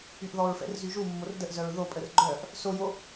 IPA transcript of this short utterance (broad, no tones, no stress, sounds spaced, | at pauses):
y ʔ ð ɔ ɹ f ɛ̰ r z y ʒ u mː o r d ə ʔ z œ ɹ ð o pʼ ə r ɡ͡ǃ œ ʔ | s o j o